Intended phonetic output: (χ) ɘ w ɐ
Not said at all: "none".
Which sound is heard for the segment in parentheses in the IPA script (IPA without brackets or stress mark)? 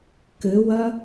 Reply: k